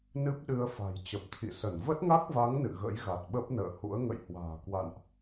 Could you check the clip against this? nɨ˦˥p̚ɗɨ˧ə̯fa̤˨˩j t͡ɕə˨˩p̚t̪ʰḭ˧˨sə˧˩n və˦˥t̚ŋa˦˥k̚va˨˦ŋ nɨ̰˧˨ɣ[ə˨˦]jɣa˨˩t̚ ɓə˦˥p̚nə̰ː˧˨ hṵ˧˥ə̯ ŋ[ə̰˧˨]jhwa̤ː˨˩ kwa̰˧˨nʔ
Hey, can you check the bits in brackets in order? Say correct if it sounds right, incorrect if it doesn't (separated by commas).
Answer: incorrect, correct